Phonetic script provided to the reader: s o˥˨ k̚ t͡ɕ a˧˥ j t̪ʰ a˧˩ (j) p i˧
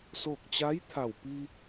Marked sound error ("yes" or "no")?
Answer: yes